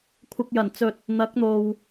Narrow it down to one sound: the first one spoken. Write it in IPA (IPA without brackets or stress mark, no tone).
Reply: kʷʰ